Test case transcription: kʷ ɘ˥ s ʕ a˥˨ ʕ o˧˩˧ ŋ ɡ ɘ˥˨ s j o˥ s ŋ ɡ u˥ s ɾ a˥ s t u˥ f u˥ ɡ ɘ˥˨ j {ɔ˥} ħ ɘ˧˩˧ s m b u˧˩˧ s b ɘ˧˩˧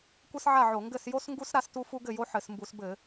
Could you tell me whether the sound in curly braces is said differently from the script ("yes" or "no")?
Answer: yes